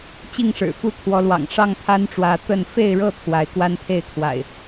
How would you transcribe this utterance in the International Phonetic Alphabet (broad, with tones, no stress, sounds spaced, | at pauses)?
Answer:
t͡ɕ i˥˨ ŋ ʂ ɻ̩˨˩ f u˦ t̪ʰ w ɔ˨˦ l w ɑ̰˨˩ ŋ ʂ ɑ˥˨ ŋ t̪ʰ a˦ n ʈ͡ʂ w ä˨˦ t̪ ə˥˨ n f e˥˨ ɪ̯ ɻ ɤ˥˨ t̪ʰ w a˨˦ ɪ̯ k w a˦ n t̪ʰ e˥˨ ɪ̯ kʰ w a̰˨˩ ɪ̯